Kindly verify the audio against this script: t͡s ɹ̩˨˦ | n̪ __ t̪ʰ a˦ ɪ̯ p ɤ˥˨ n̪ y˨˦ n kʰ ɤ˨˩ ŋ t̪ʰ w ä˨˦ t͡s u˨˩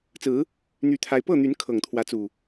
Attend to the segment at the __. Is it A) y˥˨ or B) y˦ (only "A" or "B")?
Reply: A